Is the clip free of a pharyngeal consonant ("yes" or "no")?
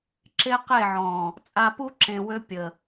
no